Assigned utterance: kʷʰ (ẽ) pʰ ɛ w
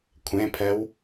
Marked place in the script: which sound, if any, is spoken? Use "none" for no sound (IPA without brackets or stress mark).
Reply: ẽ